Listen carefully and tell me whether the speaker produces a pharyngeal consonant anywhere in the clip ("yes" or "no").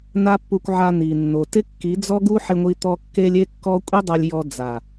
yes